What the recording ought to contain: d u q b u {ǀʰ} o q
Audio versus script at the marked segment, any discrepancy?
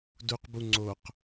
yes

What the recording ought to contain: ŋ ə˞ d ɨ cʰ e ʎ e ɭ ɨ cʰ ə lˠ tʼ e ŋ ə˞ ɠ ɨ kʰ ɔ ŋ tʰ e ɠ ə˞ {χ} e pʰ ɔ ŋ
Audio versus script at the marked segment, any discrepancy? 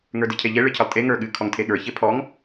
yes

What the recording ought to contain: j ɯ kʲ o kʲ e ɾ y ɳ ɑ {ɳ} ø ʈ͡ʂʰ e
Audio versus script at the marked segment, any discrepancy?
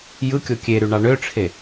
no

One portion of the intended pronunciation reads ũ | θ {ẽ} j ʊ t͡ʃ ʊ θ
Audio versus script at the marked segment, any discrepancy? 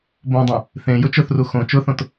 no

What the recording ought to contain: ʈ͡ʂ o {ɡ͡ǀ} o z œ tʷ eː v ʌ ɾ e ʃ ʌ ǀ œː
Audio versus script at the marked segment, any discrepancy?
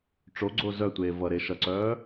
no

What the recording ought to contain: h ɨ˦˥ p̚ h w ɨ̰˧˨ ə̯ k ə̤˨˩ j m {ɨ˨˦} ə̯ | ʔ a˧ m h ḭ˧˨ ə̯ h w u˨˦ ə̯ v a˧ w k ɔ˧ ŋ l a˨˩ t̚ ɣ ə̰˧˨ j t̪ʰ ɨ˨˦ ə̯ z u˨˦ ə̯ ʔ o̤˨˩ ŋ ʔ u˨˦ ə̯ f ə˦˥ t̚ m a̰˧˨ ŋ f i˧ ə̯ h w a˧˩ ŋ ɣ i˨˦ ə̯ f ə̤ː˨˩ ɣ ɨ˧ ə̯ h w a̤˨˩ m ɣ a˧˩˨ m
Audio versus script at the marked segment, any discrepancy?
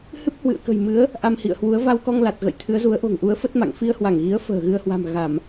no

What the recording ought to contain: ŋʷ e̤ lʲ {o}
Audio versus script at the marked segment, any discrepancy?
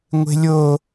no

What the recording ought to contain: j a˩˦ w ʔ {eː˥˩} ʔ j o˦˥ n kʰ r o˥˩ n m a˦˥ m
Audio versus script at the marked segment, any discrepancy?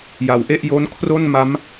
yes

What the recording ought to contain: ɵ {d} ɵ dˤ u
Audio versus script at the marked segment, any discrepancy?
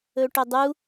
yes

